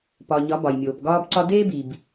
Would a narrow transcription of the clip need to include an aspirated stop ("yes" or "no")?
no